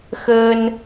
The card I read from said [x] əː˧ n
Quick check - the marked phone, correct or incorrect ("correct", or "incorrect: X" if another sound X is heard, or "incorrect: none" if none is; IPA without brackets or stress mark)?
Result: correct